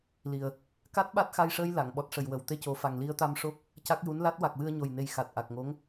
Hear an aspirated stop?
no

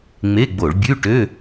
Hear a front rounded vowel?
yes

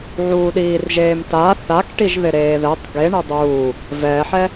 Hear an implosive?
yes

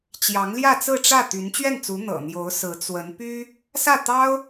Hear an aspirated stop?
no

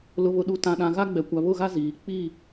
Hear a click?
no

